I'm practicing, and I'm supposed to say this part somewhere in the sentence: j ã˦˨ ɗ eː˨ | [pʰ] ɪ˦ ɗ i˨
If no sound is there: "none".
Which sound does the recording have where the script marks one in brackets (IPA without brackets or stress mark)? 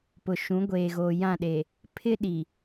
pʰ